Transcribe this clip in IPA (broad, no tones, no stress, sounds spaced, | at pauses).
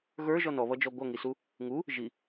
ɣ ə˞ ʒ ɔ n ɔ β ʌ d͡ʒ ɔ ɡʷ ʌ ŋ i s u | ŋ u | ʒ i